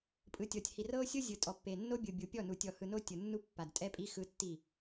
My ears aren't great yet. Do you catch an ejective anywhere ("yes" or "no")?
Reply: yes